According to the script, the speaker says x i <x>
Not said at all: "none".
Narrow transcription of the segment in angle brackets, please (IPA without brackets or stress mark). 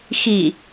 none